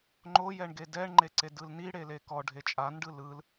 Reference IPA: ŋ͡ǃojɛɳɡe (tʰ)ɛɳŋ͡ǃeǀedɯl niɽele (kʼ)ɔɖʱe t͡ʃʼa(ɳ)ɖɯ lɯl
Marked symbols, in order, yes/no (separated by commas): no, no, no